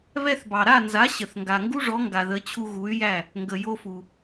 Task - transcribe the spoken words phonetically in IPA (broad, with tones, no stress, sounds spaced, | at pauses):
β ɛ˧ θ b ɑ˩ ɾ a˥˩ n z a˩˥ ɕ ə˩ θ ŋ ɡ a˩ ŋ ɡ u˥ ʐ ɔ˩˥ ŋ ɡ a˩ ð ə˩˥ t͡ɕʰ u˧ ɣ u˩˥ y̯ j æ˥˩ | ŋ ɡ ə˩ j o˧ f u˩